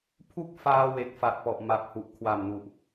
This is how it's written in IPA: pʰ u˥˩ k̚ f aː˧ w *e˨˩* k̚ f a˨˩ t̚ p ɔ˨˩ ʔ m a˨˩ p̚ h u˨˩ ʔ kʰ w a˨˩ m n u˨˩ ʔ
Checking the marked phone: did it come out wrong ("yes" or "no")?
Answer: no